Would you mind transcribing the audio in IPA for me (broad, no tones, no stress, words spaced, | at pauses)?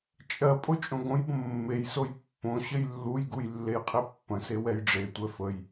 t͡ʃʼɜpʼo t͡ʃʼõɡõjbə̃ mːejsoj pːõ ɕəjlːujɡuj lːejqʰipːə̃se wɛjɖ͡ʐetʷɛ fəj